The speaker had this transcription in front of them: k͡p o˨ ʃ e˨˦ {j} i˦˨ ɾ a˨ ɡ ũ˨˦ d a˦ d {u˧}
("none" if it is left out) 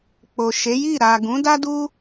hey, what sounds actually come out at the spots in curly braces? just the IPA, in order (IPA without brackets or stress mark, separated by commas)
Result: j, u˦